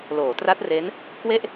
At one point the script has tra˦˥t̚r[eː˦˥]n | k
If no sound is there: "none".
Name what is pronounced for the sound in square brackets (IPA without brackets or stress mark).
e˦˥